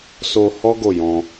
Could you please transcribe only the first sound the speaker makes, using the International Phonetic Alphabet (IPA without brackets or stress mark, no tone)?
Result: s